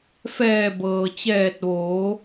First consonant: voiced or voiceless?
voiceless